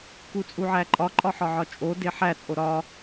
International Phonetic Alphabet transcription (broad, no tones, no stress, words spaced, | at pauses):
kut͡sʼuʕæǃʼɒ ǃʼɒħɒʕɒt͡ʃʼo deħæt͡sʼo ɾɒ